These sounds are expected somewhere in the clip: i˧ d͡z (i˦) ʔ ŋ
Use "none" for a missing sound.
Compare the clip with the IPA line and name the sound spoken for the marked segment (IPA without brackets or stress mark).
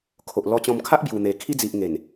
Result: i˨